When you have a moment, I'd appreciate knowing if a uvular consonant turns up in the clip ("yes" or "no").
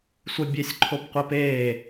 yes